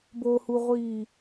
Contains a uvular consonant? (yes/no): yes